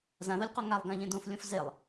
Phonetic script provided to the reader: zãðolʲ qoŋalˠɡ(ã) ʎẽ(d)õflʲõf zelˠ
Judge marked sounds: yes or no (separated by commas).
yes, yes